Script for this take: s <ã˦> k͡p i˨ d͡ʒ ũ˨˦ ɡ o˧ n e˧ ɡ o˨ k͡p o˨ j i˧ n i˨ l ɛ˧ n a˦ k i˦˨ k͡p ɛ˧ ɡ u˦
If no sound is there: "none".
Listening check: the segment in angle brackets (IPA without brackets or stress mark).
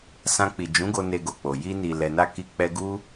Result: ã˧